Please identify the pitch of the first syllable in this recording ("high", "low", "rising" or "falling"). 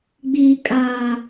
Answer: high